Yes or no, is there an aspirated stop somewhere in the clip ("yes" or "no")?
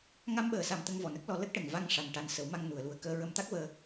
no